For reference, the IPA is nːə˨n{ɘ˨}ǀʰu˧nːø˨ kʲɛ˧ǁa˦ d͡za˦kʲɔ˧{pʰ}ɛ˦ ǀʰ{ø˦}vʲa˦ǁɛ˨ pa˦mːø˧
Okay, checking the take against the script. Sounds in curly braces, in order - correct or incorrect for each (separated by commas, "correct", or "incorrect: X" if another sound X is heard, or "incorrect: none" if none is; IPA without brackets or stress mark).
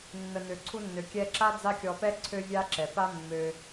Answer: incorrect: ø˨, incorrect: p, correct